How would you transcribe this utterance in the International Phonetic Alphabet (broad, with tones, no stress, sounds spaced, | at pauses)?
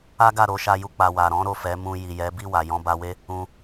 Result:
a˦ ɡ a˦˨ ɾ o˧ ʃ a˧ j u˧ k͡p a˨ w a˨ ɾ ɔ̃˨˦ ɾ o˦˨ f ɛ˨˦ m ũ˧ j i˨ j ɛ˨˦ b i˦˨ w a˨ j ɔ̃˧ b a˧ w e˦ | ũ˧